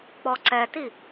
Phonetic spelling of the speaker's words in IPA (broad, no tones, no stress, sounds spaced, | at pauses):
k͡p ɔ ǀ ɛ t i